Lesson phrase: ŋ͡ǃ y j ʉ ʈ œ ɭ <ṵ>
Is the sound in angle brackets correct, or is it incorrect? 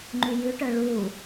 incorrect